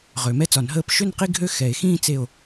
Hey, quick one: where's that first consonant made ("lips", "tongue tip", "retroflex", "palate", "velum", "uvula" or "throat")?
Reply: uvula